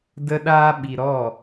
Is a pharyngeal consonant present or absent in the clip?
absent